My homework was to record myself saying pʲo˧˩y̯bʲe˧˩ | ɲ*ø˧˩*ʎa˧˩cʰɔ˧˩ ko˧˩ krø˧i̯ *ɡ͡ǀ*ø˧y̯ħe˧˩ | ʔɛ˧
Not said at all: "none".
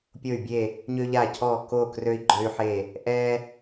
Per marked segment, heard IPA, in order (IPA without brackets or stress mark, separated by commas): ø˧, ɡ͡ǃ